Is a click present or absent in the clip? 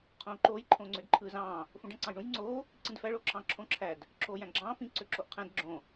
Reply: present